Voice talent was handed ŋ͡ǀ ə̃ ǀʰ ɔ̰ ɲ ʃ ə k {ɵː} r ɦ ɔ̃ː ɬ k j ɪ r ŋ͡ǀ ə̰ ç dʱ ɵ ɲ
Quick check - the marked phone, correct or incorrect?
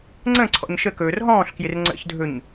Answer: correct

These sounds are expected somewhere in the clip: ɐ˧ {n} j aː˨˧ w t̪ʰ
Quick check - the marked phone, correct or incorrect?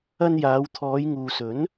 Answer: correct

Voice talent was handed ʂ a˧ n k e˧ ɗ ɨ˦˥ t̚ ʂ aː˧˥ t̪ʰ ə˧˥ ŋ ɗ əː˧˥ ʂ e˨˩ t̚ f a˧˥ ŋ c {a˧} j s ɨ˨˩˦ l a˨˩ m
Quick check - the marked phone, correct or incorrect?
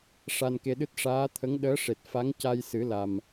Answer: correct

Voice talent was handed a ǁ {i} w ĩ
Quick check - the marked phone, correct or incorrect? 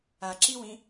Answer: correct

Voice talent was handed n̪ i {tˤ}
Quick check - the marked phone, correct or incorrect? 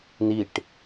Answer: incorrect: ʈ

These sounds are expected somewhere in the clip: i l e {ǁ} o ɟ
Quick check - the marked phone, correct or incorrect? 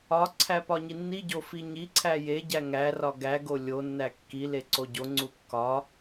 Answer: incorrect: ǀ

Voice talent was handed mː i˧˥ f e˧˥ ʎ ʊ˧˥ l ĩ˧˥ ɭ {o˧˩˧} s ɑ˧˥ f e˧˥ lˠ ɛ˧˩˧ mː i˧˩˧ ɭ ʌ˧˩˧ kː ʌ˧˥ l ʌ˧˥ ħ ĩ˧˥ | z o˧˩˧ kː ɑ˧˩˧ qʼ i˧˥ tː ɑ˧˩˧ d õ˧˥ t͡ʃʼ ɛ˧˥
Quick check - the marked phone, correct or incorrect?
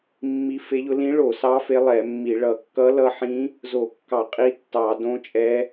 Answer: correct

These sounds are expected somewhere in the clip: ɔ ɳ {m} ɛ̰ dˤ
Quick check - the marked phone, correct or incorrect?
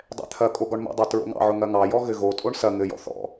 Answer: correct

